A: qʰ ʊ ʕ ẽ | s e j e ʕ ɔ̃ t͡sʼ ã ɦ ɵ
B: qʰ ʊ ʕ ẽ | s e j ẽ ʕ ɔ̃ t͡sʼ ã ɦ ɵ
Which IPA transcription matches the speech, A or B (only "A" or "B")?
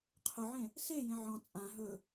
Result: B